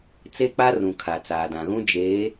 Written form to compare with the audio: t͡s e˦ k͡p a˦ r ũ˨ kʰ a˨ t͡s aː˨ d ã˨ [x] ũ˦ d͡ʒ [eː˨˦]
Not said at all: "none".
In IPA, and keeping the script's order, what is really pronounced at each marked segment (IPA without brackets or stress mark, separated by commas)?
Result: ɣ, eː˨˦